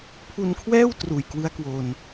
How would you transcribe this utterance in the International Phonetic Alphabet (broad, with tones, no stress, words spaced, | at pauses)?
pʰu˧nkʰwɛː˥˩w truː˨˩jkwɯ˦˥a̯kwo˧n